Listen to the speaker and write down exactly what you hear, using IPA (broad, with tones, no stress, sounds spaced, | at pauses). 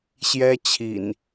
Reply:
ɕ j ɛ˦ t͡ɕʰ ḭ˨˩ n